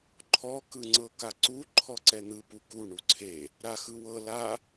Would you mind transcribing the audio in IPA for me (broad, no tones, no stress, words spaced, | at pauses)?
ǃʰɔ kɯŋ͡ǀɤkaǀu ǃʰɔǀɛn̪ɯ puku ɳuǀʰe | ɾaxɯwɤ la